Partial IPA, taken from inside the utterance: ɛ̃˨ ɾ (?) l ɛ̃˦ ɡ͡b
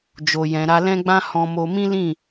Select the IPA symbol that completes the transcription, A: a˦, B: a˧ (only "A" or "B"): B